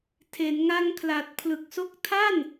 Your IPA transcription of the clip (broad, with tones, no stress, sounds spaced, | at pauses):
tʰ e˩˦ n ŋ a˧ ŋ kʰ l a˨˩ t̚ pʰ l ɯ˨˩ k̚ s o˦˥ k̚ tʰ a˥˩ n